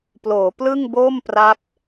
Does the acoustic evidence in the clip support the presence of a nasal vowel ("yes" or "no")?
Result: no